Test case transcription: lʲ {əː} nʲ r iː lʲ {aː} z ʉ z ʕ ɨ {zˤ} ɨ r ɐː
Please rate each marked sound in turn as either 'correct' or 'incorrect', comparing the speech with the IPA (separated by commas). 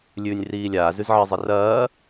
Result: incorrect, correct, correct